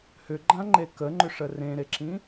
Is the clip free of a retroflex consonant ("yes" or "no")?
no